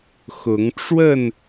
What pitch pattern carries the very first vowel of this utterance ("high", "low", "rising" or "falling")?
rising